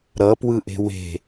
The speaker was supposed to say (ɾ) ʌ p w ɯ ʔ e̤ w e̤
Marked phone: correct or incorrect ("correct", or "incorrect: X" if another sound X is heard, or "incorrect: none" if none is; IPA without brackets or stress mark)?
correct